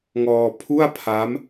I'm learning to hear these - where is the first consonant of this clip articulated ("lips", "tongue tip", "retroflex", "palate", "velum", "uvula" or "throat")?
velum